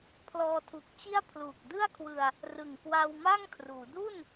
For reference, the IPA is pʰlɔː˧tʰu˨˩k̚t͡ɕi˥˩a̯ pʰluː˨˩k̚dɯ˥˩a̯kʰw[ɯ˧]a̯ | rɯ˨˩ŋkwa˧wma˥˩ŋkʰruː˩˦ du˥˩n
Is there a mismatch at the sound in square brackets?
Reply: no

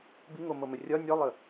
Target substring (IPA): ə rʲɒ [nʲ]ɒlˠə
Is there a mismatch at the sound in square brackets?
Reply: no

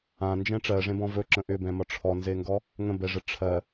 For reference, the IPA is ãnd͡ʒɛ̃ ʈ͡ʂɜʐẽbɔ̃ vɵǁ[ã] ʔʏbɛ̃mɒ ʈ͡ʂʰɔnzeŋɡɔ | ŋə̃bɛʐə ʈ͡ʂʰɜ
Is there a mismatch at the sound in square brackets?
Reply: yes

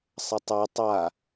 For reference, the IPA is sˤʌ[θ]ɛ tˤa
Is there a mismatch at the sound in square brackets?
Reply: yes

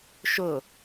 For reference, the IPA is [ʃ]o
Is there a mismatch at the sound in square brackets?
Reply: no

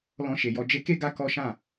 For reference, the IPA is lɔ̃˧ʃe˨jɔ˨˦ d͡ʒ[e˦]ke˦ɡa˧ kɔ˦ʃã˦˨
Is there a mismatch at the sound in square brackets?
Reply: yes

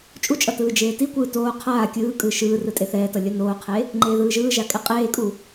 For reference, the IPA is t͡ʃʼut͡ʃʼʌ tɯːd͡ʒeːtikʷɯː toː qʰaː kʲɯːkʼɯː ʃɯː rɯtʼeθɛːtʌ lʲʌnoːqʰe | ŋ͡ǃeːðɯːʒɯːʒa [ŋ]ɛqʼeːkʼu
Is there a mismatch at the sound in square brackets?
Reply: yes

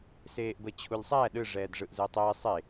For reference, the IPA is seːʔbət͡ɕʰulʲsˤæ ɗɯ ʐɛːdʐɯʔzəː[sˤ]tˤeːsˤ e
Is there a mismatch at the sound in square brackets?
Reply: yes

